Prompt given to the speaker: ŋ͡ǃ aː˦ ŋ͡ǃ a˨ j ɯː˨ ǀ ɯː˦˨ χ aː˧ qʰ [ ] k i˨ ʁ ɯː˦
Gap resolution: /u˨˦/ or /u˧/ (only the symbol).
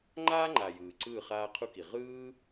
u˧